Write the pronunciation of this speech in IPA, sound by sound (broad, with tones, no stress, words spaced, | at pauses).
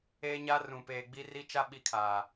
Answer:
eː˦ɲa˦ rũ˨peː˨ ɡ͡bi˦ri˦t͡ʃa˦ ɓi˦˨kʰaː˨